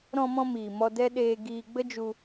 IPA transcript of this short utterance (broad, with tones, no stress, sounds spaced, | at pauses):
ɾ ɔ̃˧ m ɔ̃˧ m iː˨ m ɔ˧ d ɛ˦ ɗ eː˧ ɡ iː˧ ɡ͡b ə˦ d͡ʒ u˧